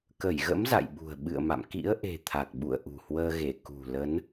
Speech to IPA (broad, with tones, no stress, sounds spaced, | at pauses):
k ə˧˩ j ɣ ə̰˧˥ m z a̰˧˨ j ɓ ṳ˨˩ ə̯ ɓ ɨ̰˧˨ ə̯ m a̰˧˨ m k ḭ˧˥ ə̯ ʔ e̤˨˩ t̪ʰ a˨˩ k̚ ɓ ṵ˧˨ ə̯ ʔ ṳ˨˩ h w əː˧ ɣ e˧˩ k ṳ˨˩ l ə˨˦ n